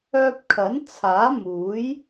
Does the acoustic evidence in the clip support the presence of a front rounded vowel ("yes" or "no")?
yes